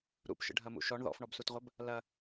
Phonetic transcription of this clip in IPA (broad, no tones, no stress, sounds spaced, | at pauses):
ɾ ṵ p ʃ ə̰ ɖʱ ɐ m ṵ ʃ ɔ ɳ ð ɔ̰ f ɳ ɔ b s u t ʁʷ ɐ b | l ɐ